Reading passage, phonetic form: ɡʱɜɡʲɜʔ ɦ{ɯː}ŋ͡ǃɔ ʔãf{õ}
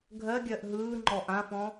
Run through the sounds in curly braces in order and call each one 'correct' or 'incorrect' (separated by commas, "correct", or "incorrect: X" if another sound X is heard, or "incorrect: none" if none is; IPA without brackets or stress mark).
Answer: correct, incorrect: ɔ̃